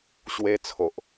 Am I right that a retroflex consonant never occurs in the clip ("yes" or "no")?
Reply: yes